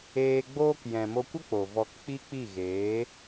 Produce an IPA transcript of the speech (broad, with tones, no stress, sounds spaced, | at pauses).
eː˧ ɡ͡b oː˦ k j ɛ̃˨ m o˧ kʷ ə˦ k͡p o˨ v ɔ˧ k k͡p i˦ k͡p i˦˨ ɣ eː˨˦